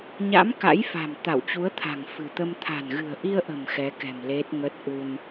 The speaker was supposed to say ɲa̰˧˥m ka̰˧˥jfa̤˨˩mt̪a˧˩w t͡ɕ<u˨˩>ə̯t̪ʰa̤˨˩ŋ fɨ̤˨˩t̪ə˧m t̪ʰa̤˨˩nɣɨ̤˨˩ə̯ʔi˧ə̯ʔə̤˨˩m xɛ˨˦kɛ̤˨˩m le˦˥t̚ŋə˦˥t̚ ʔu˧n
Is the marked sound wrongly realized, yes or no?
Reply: yes